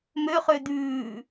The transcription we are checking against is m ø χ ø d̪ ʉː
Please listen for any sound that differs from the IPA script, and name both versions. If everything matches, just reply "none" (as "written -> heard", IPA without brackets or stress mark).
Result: none